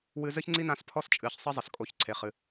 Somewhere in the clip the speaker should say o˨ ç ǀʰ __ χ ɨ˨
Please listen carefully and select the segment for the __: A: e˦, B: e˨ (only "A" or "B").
B